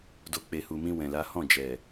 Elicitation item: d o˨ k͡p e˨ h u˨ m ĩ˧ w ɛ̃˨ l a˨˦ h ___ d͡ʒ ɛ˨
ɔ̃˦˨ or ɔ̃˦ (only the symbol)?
ɔ̃˦˨